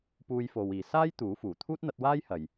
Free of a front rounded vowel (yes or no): yes